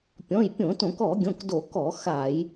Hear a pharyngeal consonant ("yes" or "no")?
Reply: no